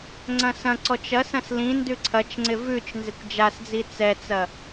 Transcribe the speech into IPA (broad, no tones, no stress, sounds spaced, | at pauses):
ŋ͡ǀ ɐ̃ s ɐ̃ ǀ ɔ t͡ʃ ɐ s ɐ̃ s l ĩ n d ʉ ǀʰ ɐ t͡ʃ ŋ͡ǀ ɪ v ʉ t͡ʃ n z ɪ kʷ d͡ʒ a s d͡z i t͡s ɛ t͡s ɐ